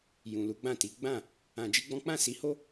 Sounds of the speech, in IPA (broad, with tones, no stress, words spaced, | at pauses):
jũ˨lu˨˦ ɡ͡bã˦˨ti˨˦ ɡ͡bã˦˨ | ã˧d͡ʒi˦ɡ͡bɔ̃˦ k͡pã˦˨si˨˦ho˦